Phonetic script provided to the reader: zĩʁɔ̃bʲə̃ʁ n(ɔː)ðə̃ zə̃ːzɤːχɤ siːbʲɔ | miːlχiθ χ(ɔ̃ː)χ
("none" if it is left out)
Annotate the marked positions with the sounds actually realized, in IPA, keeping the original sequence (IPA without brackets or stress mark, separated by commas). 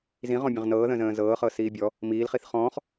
ɤː, ɔ̃ː